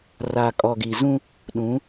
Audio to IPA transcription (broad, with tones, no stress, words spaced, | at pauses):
ra˨kʼɔ˨ ɡi˨zũ˦ | ɗũ˨˦